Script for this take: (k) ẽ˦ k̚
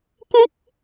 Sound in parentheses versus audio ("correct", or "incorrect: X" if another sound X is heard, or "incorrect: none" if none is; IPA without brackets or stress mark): correct